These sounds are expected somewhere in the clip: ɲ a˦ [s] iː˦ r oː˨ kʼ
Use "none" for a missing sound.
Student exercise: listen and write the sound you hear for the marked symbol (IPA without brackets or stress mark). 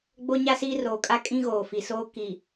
s